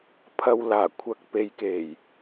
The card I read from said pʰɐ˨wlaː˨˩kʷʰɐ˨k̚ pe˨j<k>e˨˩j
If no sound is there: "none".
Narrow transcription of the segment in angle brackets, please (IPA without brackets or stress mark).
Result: k